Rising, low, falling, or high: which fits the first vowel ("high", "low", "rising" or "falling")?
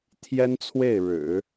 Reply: high